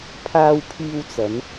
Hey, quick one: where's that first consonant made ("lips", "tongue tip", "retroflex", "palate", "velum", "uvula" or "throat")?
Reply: lips